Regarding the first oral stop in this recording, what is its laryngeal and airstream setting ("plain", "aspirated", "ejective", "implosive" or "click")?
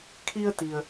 aspirated